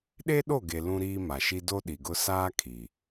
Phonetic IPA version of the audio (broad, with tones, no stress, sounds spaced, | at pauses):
ɗ e˦ ɗ o˦˨ ɡ e˨ l ũ˦ ɾ iː˦ m a˨ ʃ i˦ d o˦ ɗ i˨ ɡ ʊ˦ s aː˦ kʰ i˨